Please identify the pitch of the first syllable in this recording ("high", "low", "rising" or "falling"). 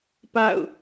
falling